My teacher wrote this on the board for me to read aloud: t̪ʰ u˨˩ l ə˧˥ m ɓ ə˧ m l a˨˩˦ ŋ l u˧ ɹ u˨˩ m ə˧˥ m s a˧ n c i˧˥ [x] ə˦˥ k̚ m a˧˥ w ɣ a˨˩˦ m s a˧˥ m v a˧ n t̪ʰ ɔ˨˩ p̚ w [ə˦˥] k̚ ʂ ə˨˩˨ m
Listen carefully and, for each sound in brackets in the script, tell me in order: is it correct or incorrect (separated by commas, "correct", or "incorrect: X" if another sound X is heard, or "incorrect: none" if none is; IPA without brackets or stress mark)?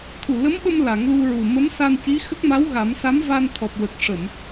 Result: correct, incorrect: ə˨˩